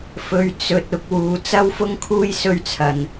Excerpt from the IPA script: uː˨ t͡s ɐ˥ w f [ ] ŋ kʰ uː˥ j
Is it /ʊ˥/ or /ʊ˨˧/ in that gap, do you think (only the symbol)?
ʊ˥